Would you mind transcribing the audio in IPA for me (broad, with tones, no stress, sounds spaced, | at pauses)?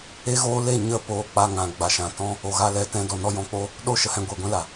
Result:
e˦ ɣ oː˦ l e˦˨ ɲ ə˦˨ p oː˧ k͡p a˧ ŋ ã˨ ɡ͡b a˨ ʃ ã˨ t ɔ̃˦ | o˨ ɣ a˧ l ɛ˨ t ɛ̃˧ d ɔ˨ n ɔ˧ j ɔ̃˧ k͡p o˦ | ɗ o˦˨ ʃ ə˨ h ɛ̃˨ ɡʷ ɛ˨ ɡʷ ɛ̃˧ l a˨